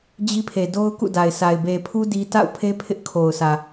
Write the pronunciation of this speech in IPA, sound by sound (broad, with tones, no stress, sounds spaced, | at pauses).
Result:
d͡ʑ i˦ pʰ e˨ d o˦ ʊ̯ k ṵ˦˨ d a˨ ɪ̯ s a˨ ɪ̯ b e˨ pʰ u˦ d i˦ t a̰˦˨ ʊ̯ pʰ e˦ pʰ ɪ˦ ʔ kʰ o˨ ʊ̯ s ä˨